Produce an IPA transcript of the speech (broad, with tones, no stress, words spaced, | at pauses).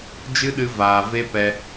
d͡ʒɨ˦ɗɨ˧ vaː˧ ve˦ pɛ˧